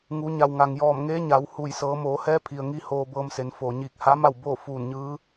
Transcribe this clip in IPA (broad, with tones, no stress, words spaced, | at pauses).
ŋu˩˧ ɲa˩wŋa˩ŋjɔː˧˩mŋeː˧˥ ɲa˩˧whu˧˩j sɤː˩˧moː˩˧hɛː˧˥ pʰi˩ə̯ŋi˧ hoː˧bɤː˧mse˩˧nfoː˩ ɲiː˧˩k̚ha˧˥ma˥˨w boː˥˨fuː˧˩nɲɯː˧˥